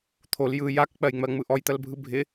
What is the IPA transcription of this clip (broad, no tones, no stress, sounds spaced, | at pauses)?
t̪ʰ o l j ɯ j a k k͡p ɜ j ŋ͡m ɜ ŋ͡m ɯ ʔ ɔ j t̪ ɜ l bʱ ɯ bʱ ɪ